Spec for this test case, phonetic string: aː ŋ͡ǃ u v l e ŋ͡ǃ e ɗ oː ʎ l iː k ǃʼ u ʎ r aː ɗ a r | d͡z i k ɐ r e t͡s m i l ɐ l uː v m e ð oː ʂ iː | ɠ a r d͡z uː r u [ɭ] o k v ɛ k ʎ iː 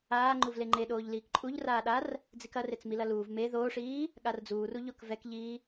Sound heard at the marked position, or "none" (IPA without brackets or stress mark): ʎ